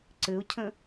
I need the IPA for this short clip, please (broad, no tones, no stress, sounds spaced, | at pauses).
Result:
ǀ ɘ ʊ̯ cʰ ə̃